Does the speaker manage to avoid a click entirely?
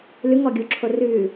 no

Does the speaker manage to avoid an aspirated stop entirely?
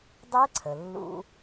no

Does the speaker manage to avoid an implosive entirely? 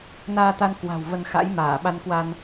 no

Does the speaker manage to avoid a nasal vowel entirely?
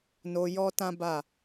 no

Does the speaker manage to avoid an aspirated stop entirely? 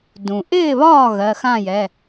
yes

